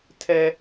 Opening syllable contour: high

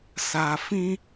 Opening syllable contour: low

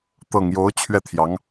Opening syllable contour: low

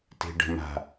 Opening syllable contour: low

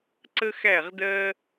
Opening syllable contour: high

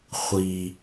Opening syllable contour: low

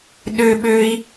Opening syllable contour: high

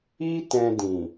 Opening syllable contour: high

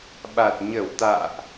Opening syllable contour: low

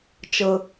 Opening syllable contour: low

